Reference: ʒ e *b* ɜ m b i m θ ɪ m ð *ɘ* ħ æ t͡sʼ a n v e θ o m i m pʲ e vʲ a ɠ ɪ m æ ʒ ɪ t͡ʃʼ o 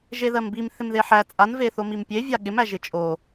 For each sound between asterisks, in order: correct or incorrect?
incorrect: ð, incorrect: e

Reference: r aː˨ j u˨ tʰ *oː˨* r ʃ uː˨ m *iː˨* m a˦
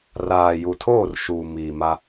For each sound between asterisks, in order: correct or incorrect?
incorrect: oː˦˨, correct

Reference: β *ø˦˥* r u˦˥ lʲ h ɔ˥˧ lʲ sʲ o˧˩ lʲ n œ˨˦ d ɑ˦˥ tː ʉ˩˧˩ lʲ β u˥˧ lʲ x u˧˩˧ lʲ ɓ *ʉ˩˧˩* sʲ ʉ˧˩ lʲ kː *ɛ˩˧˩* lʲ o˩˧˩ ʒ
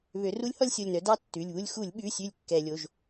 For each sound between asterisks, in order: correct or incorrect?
incorrect: ø˨˦, correct, incorrect: ɛ˧˩˧

